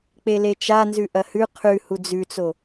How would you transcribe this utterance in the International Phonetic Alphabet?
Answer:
k͡p e l e t͡ʃ a n z ʉ ʔ ɐ h ʉ qʰ ʉ h u d͡z ʉ t͡s o

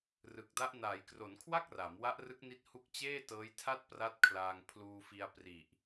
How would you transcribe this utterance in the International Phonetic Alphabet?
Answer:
r ɯ˨˩ k̚ d a˦˥ ʔ n aː˩˦ j k r o˩˦ n kʰ w a˥˩ k̚ r a˩˦ m w a˦˥ ʔ r ɯ˦˥ k̚ n i˦˥ t̚ h u˦˥ k̚ t͡ɕ eː˥˩ t ɤː˦˥ j tʰ a˥˩ t̚ p r a˥˩ t̚ kʰ l aː˧ ŋ pʰ l uː˧ f i˧ a̯ p r i˨˩ ʔ

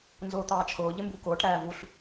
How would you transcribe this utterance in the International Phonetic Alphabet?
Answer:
n z ʊː t̪ ɑː t͡ʃʰ ʊː ʎ ɪ m b u k ʊː ʈ ɾ æː v u ɬ

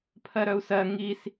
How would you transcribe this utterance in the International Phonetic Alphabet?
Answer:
pʰ ɜ ɾ œ u̯ s ɜ ŋ i s

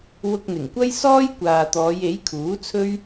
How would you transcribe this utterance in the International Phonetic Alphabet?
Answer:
w ʊ˧ k̚ n̪ ɪ˨˩ ŋ kʷ ɐ˥ j s ɔː˥ j kʷ aː˨ t̪ ɔː˨˧ j e˨˥ j kʰ uː˨˥ t͡sʰ ɵ˥ ɥ

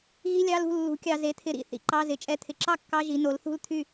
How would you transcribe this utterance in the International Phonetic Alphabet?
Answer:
ɣ i˧˥˧ lʲ ɑ˧˥˧ l ṳ˥˩ lː ṳ˩˥ kʲ ɑ˨ z e˩˥ t̪ʰ ɪ˩˥ ɾ ḭ˥˩ θ ḭ˨ ǃ ɑ˧˥˧ z ɪ˩˥ t͡ʃʼ ɛ˧˥˧ t̪ʰ ɪ˩˥ ǁ ɑ˥˧ kː ɑ˧˥˧ ʒ i˩˥ n o˩˥ l θ ṳ˥˧ l t̪ʰ y˥˩

